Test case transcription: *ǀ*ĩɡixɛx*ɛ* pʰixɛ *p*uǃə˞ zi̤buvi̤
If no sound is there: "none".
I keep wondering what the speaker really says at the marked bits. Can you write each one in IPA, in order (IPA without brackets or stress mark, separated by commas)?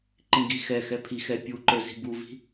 ǃ, ɛ, pʲ